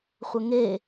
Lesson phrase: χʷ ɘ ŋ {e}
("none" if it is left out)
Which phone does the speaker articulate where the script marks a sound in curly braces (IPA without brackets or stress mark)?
e